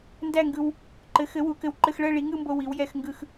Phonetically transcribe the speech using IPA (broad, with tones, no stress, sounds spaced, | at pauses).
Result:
n d æ˥˨ ŋ ɡ ɯ˧ w | ǃ ɘ˩˥ x ɘ˩˥ w u˩˥ k ɘ˧ w ǃ ɘ˧ x ɭ ɜ˥˨ ɭ i˩˥ ŋ ɯ˥˨ m b o˧ w i˩˥ w j ɛ˧ x ŋ ɡ ɯ˧ x